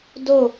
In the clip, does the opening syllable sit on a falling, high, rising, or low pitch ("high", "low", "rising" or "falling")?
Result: falling